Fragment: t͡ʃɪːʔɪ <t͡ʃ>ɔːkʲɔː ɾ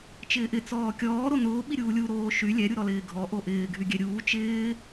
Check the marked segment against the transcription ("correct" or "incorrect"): incorrect